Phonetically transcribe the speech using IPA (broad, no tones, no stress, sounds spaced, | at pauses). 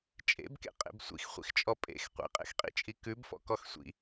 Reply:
t͡ʃʼ ḛ b k ḛ qʼ ḛ b sʷ ḭ x χʷ ḭ x t͡ʃʼ ɔ pʼ ḛ x qʷ ḛ qʼ ḛ x qʼ ḭ t͡ʃʼ i k ʉ b f ɔ̰ k ɔ x sʷ ḭ